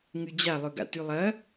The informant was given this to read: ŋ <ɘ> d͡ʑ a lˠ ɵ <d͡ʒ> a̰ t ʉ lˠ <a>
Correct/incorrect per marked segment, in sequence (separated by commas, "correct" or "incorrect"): incorrect, incorrect, incorrect